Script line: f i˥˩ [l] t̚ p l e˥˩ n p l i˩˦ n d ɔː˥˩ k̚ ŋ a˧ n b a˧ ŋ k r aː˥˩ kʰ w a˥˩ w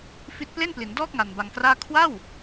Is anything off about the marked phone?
yes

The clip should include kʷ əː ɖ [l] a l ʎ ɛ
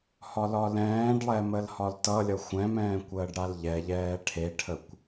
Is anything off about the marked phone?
yes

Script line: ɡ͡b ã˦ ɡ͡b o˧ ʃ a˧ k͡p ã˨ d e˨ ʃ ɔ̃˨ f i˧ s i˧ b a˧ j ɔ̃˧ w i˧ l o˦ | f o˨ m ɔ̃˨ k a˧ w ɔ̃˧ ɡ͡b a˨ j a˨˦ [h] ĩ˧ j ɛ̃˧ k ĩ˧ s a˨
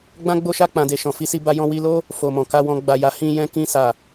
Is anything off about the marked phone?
no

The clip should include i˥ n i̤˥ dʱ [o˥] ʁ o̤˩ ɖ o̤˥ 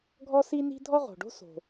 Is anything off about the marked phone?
yes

